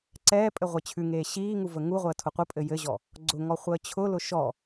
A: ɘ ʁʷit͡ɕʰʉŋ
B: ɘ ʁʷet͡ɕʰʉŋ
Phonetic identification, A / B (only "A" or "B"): B